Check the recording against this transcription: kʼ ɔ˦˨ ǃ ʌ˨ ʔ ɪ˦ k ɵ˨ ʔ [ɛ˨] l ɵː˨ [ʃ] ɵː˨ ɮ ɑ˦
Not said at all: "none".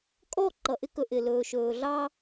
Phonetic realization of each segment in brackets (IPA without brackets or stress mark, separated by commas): ɪ˨, ʃ